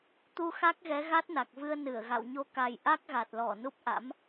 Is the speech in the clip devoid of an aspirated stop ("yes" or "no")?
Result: yes